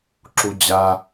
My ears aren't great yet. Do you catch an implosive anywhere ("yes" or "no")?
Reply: no